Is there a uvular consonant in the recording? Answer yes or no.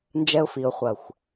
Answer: yes